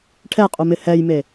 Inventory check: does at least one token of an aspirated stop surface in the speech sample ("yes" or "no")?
yes